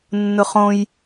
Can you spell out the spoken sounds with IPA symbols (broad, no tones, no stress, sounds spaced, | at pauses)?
nː ʊ χ õ j